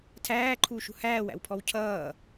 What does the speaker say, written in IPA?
tʰ æː ǃʰ uː ʃ ṳ h æː w æ̰ w pʰ ɔ w cʰ ʌː

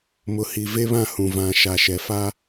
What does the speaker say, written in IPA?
m ʊ˨ h i˨ v e˦ β ã˦˨ h ũ˨ v ã˨ ʃ a˨ ʃ ɛ˨ f a˦

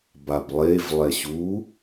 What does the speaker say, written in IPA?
b a b lˠ e v lˠ ɛ ɕ u

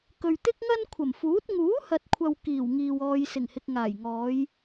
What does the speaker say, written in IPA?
k ɵ˨ ɥ t̪ ɪ˥ k̚ ŋ ɐ˥ n kʷʰ ɐ˨˩ m f uː˨˥ t̚ ŋ uː˨˥ h ɐ˨ t̚ kʷʰ ɐ˨ w k iː˨˩ w ŋ iː˨ w ɔː˧ j s ɪ˨˩ ŋ h ɪ˨ k̚ ŋ aː˨˩ j ŋ ɔː˨˧ j

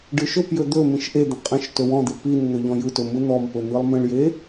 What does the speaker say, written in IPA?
ɖ ɯ ʃ ɵ p j ɵ d̪ ɵ m ĩ ʃ ʔ e d̪ ə̃ qʼ ə̃ ʃ t ɵ w ɔ̃ d̪ e p i n n̪ ɵ ʎ ɔ̃ j ɯ t ɵ m ɯ n̪ ɔ m p ɵ n̪ ɯ lˠ m ə̃ ɭ j e

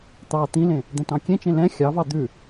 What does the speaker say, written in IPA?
t̪ ɑ t̪ ĩ l ẽ | d̪ ɛ̃ t ɑ̃ kʲ ẽ t͡ʃ ẽ l ɛ̃ xʲ ɑ v ɑ d̪ ʉ

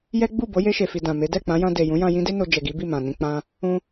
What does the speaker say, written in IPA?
j ɛ˦ ɡ͡b u˦˨ b o˨˦ j e˧ ʃ e˨ f i˨ d ã˨ m e˨˦ d ɛ˦˨ k͡p ã˨˦ j ã˧ d e˨ j ũ˨˦ j ã˧ j ĩ˦ d e˦ n o˧ d͡ʒ ɛ˨ ɡ i˨˦ b i˦˨ m ã˨ n ĩ˧ k͡p ã˦ | ũ˧

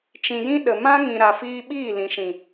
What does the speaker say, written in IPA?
t͡ʃ ĩ˨ j ĩ˧ ɗ ə˨ m ã˦ ŋ ĩ˨ ɾ a˨ f iː˧ ɓ iː˦˨ l ĩ˨ ʃ ĩ˨

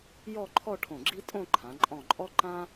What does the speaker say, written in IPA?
j ɔ˥˧ ǃʰ ɔ˥˧ ʈʰ õ˧˩ ɡ͡ǁ i˥ tʼ õ˥˧ ǃʰ ã˩˧ ǃʼ ɔ̃˧˩ ǃʼ ɔ˥ ǃ ã˥

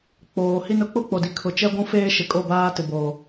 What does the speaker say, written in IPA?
k͡p oː˨ h i˦ n ʊ˦ k͡p ʊ˦ k͡p o˨ d i˨ kʰ ʊ˨ t͡ʃ ɛ˦ ɡʷ ũ˦ f eː˦ ʃ ɪ˨ kʼ o˦˨ b aː˦ t ɪ˨ b o˨

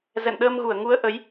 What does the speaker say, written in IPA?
z ɛ̰˧˨ n ɗ əː˧ m ɣ u˧˩ ə̯ ŋ u˨˦ ə̯ ʔ ə˨˦ j

